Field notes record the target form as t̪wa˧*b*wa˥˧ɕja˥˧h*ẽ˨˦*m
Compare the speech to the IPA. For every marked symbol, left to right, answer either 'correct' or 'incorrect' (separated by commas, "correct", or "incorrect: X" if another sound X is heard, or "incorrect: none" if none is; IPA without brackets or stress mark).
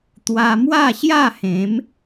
incorrect: m, correct